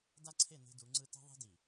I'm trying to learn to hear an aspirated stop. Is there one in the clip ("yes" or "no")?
yes